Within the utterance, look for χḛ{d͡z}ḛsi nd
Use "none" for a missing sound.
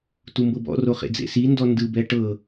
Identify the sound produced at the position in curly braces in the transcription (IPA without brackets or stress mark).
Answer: d͡z